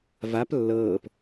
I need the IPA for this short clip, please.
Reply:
v a p lː ɤː p

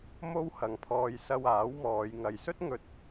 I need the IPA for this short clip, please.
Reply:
m o˥ w h ɐ˨˧ ŋ pʰ ɔː˧ j s ɐ˧ w aː˨˥ w m ɔː˨˧ j ŋ ɐ˨ j s ɵ˥ t̚ ŋ ɵ˧ t̚

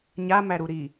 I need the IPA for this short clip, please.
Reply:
ɲ a m æ ɾ u ɾ i

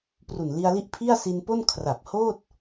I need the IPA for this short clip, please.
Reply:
p r u˨˩ n l i˧ a̯ l i˦˥ ʔ pʰ i˥˩ a̯ s i˧ n p o˥˩ n kʰ r a˨˩ p̚ h oː˥˩ t̚

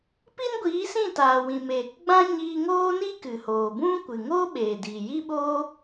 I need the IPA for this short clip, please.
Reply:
p i˦ n ɡʷ iː˨˦ s ĩ˦˨ t aː˨ w ĩ˨ m eː˨ k ɡ͡b ã˦ ɲ iː˧ ŋ oː˦ n i˦ k ɨ˨ h oː˨ b ũ˦ kʷ ɨ˨ ŋ o˦ ɓ eː˨ d iː˨ j i˦ ɓ oː˦

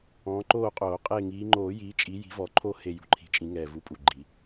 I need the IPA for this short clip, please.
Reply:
ɔ̃ː˨˦ ǃ oː˦˨ qʼ oː˨˩˦ qʼ e˦˨ ŋ iː˨˦ ŋ͡ǃ oː˨˩˦ j iː˨˦ t͡ʃʼ i˨˦ j i̤˨˦ v ɔ˨˩˦ ǃʰ o˦˨ h e˦˨ j ṳ˦˨ ǃʰ i̤˨˩˦ t͡ʃʼ ĩ˨˦ ŋ ɛː˨˩ v u˨˦ pʼ u˨˩ ɡ͡ǃ i˨˩˦

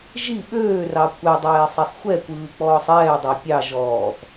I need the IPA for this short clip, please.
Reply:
ʒ i ɓ øː r ɑ kʷʰ ɛ dˤ eː sˤ ɛ sˤ xʷ ɛ kʷ ɯː k͡p ɔː sˤ ɛː dˤ ɑ pʲ ɑ ʒ ɔː θ

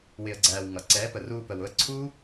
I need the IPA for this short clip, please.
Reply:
w ɪ˨ ə̯ ɡ͡ǀ æː˨ w ŋ ʌ˨ ǀ ɛː˨˦ p ə˨ r uː˧ p ə˨ w ʊ˧ ə̯ ǀʰ uː˦

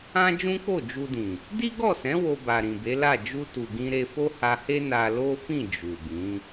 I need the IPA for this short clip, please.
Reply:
ã˦ d͡ʒ ũ˦ k͡p o˦˨ d͡ʒ u˧ d ĩ˨ | d i˦ ɡ ɔ˦˨ s ɛ̃˨˦ w o˧ b a˨ ɾ ĩ˨ b e˨˦ l a˦˨ d͡ʒ u˧ t u˨ ɡ ĩ˧ ɾ e˧ f o˦ h a˧ h e˦ n a˧ l o˦ f ĩ˦˨ d͡ʒ u˨ b ĩ˨˦

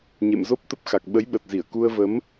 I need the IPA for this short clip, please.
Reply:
ɲ ḛ˧˨ m z o˦˥ p̚ t̪ ə˦˥ p̚ x a˨˩ k̚ ɓ ə˨˦ j ɓ ə˨˩ t̚ z i˧˩ ə̯ k u˧ ə̯ v ə˨˦ m

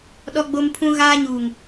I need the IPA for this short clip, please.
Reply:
ɗ ɔ˦ ɡ͡b o˦ m pʰ ũ˦ ɣ aː˦ ɲ uː˨ ŋ

